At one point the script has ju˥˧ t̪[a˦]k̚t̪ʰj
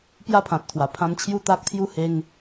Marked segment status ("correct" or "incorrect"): correct